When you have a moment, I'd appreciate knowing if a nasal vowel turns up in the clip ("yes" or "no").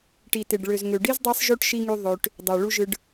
no